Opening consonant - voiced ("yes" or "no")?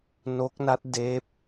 yes